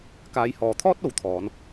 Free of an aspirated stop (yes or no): no